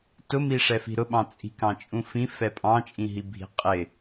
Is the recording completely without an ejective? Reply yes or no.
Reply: no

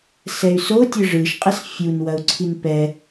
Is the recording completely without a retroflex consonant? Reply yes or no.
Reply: no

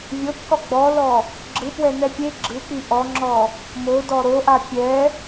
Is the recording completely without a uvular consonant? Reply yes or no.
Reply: yes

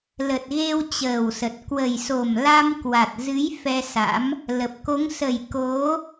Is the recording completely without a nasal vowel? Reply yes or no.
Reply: yes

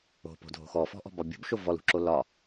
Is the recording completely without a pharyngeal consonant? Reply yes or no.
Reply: yes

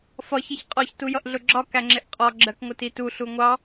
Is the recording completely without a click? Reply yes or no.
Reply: no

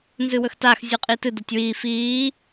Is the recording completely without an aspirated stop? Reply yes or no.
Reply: yes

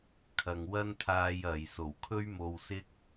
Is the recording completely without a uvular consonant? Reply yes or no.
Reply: yes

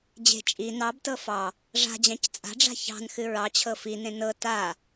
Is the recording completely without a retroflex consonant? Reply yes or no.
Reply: no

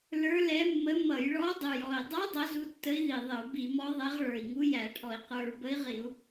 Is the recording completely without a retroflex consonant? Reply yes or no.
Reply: no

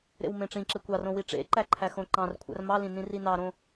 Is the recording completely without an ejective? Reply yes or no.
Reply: yes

